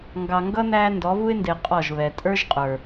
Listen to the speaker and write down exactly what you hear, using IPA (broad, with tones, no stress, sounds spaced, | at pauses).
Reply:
ŋ ɡ ɑ˨ ŋ ɡ ʌ˦ n æ˦ n d ɔ˨˦ v u˦ ɪ̯ n d ɪ˨ qʼ ɔ˦˨ ʒ β ɛ˨ tʼ ə˞˦ ʒ qʼ ə˞˨